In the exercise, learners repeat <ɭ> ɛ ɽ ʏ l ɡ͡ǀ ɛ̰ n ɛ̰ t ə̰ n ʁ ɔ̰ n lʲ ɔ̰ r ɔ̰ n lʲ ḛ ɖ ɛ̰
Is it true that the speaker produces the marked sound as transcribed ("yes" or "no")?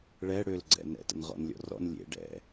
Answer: yes